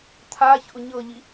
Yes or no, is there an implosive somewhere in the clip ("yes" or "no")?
no